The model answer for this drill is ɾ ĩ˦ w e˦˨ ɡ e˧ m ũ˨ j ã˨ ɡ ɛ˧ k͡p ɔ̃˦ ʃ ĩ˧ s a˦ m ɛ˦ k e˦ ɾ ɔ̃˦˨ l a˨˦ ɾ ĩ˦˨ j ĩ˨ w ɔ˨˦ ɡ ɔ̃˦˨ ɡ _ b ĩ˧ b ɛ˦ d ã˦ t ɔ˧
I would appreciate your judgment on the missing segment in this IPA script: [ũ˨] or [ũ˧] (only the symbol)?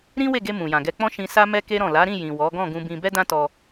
ũ˧